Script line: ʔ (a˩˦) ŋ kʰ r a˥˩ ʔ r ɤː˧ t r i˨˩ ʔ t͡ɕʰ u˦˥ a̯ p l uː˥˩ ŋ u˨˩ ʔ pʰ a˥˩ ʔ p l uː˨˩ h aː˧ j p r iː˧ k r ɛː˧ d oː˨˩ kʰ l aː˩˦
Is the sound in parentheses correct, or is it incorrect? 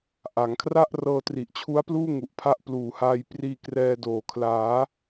correct